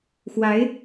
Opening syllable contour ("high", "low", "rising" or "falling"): rising